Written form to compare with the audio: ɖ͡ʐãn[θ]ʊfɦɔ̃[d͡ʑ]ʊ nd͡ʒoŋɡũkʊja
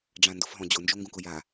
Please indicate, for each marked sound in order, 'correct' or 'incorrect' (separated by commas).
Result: incorrect, correct